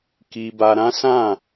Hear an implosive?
no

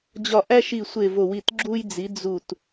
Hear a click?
yes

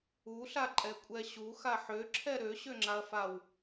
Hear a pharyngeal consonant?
yes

